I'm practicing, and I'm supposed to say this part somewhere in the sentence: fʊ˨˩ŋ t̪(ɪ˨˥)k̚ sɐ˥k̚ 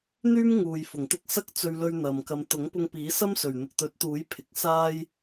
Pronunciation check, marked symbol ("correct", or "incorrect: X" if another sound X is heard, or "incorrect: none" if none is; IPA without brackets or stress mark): incorrect: ɪ˥